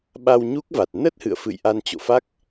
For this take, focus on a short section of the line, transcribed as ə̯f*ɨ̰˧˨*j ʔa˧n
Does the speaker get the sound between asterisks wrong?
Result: no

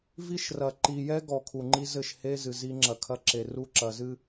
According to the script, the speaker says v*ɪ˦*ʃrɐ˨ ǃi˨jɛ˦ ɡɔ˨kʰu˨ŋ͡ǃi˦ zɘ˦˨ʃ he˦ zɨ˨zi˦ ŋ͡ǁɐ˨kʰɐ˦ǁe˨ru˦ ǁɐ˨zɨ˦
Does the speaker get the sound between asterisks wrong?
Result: yes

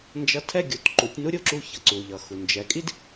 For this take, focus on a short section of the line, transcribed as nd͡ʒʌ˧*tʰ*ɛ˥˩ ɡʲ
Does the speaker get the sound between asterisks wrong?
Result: no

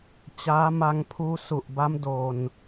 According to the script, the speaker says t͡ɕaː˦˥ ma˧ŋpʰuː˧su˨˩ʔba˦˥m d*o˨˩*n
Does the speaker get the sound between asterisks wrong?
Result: yes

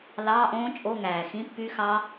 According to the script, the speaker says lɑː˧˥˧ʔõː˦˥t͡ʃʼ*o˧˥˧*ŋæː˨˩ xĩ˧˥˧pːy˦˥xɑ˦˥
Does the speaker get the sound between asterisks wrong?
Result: no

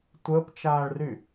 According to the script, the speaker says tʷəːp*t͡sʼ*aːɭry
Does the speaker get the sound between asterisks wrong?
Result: yes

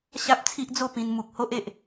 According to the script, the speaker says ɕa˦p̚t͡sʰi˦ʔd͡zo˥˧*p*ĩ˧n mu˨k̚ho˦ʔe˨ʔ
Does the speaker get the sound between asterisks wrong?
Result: no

